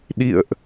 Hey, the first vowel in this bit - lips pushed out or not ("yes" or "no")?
no